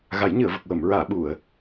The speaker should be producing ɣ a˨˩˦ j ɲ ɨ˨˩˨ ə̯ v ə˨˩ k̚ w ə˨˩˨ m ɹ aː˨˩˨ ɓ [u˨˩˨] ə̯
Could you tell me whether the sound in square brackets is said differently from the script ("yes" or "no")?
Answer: no